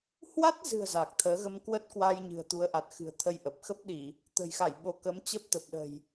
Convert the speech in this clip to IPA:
hwa˦˥t̚zɨ̤˨˩ə̯ za˨˩k̚t̪ʰəː˨˦ ɣə˧mkwə˦˥t̚kwa˧j ɲɨ̤˨˩ə̯t̪u˨˦ə̯ ʔa˨˩t̚xɨ̤˨˩ə̯t̪ʰə˧jʔə˨˩p̚ xə˦˥p̚ɗi˧˩˨ | t̪ə̤˨˩jxa˧˩j ɓo˨˦kə˨˦mt͡ɕə˦˥p̚ t̪ə˨˩p̚ɗə̤˨˩j

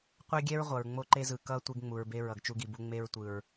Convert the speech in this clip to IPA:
qʷɛ˦ɡʲɛ˦ɹ ʁʷʌ˨ɹŋ͡mo˦ǃe˦zɯ˨ kʌ˦ tʷe˦ɡŋ͡mu˨ɹbe˦ ɹʌ˨ɡt͡ʃu˦ɡi˨bu˦ ŋ͡me˦ɹtʷɯ˨ɹ

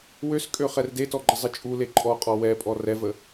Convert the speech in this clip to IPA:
wøskʼø χɛrdetɔ ɡ͡ǃəzˤɘt͡ʃʼule ǃʼɔqʼɔ wɛpʼɔ rɛvə

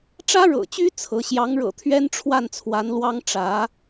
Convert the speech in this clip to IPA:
ʈ͡ʂä˥ɻɤ̰˨˩t͡ɕy˥ t͡sʰɤ˧˥ ɕjɑ˧˥ŋɻɤ̰˨˩t̪ʰɥɛ˥n ʈ͡ʂʰwa˥˩nt͡sʰwa˧˥nlwɑ˥ŋ ʈ͡ʂä˧˥

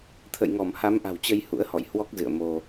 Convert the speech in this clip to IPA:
t̪ʰə̰˧˨j ŋɔ˧˩mha˨˦m ʔa̤˨˩wt͡ɕə˧j hṵ˧˥ə̯hɔ̰˧˨jhwɔ˦˥k̚ zɨ̰˧˨ə̯mo˧

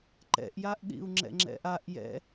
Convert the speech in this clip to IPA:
ǃɛ̰ʔjaʔɗḭu̯ ŋ͡ǁɛ̰ŋ͡ǁɛ̰ʔaʔ jɛ̰

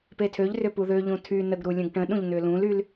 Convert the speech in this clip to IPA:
petʰøʎrʏ puðøʎũ tʰy nəɡɾu lʲə̃ɡʈə̃ɗũʎ n̪ʏlũlyl

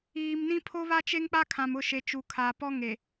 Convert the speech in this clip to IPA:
iː˨mnĩ˦ pʰo˦βa˦t͡ʃe˦ŋk͡pa˦ kʰã˨mʊ˦˨ ʃe˨t͡ʃu˨kʰa˨pɔ˦ ŋe˨

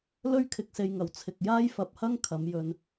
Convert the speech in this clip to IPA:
lɵ˥ɥkʰɪ˨k̚se˨jŋɐ˨˩w t͡sʰɪ˨k̚jaː˥jfɐ˨˥p̚hɐ˥ŋ kʰɐ˨˧mjɵ˨n

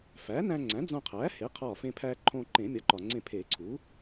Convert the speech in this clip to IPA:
fæ˩˥næ̃˧ ŋ͡ǀæ̃˩˥d͡zõ˧qʰæː˩˥ he˩˥qʰɒː˧˩fẽ˧pʰæː˧ ǃʰõː˧ ǃẽ˨˩˦mʲɒ˩˥ǃɒ˩ŋ͡ǀẽ˧˩ pʰe˨˩˦ǀʰu˩˥

